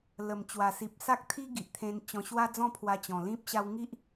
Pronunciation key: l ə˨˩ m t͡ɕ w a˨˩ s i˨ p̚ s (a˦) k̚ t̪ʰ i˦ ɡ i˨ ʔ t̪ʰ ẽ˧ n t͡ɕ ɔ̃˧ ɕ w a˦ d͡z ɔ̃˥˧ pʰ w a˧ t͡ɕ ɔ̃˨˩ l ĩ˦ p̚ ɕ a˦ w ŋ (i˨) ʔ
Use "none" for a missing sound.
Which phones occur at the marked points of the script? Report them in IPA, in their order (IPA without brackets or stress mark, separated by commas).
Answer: a˦, i˦